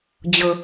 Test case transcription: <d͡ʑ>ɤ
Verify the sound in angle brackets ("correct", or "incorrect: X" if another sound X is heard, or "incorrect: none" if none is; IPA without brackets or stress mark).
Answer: correct